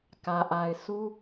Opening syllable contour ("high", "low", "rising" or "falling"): low